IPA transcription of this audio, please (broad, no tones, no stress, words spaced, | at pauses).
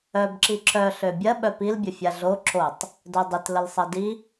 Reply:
œbǁi ǁœ ɬøbʲɐ ɓœpilbʲə fʲaɮo ǁotˤ | dœdˤɪt ləlsˤɐdi